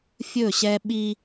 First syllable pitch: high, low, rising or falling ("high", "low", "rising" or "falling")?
falling